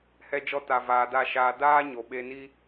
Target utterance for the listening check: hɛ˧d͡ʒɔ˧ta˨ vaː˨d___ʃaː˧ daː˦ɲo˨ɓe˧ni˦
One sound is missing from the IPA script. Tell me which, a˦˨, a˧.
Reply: a˦˨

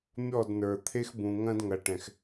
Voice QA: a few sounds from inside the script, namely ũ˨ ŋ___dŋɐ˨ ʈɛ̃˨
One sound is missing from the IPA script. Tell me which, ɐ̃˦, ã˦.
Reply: ɐ̃˦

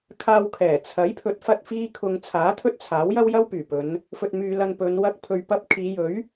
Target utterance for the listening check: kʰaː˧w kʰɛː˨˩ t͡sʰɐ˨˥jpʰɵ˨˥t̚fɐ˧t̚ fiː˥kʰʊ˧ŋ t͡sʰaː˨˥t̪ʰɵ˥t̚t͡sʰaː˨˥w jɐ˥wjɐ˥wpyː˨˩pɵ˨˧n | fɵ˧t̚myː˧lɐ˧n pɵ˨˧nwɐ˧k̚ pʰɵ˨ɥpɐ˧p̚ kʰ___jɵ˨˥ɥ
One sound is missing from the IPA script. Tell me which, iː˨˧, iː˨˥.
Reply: iː˨˧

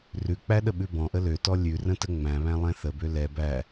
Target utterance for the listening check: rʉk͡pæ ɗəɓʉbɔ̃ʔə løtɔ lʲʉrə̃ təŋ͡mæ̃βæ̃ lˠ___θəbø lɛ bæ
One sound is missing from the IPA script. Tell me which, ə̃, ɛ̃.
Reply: ɛ̃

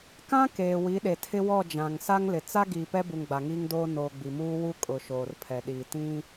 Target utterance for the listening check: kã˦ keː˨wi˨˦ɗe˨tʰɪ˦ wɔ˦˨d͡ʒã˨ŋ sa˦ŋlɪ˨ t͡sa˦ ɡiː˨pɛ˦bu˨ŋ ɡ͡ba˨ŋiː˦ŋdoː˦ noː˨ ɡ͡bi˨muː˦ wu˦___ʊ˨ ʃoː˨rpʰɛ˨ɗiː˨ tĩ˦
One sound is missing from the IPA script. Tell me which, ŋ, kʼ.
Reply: kʼ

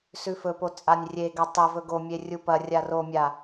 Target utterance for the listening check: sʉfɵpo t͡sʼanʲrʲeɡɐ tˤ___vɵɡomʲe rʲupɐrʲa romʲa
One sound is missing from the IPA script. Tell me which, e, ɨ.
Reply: e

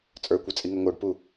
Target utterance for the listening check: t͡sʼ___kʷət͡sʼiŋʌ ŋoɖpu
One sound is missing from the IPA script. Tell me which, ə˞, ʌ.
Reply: ə˞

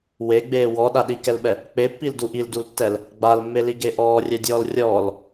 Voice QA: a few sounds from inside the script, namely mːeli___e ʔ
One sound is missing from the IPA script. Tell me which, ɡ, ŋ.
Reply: ɡ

